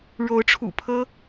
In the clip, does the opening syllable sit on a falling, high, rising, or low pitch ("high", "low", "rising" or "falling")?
rising